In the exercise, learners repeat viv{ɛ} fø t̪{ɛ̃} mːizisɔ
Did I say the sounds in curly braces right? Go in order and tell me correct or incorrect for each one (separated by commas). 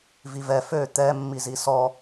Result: correct, incorrect